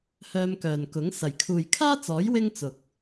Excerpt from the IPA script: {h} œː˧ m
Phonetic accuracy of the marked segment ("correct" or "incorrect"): correct